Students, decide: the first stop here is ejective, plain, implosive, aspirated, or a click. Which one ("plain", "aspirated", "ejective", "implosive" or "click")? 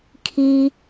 aspirated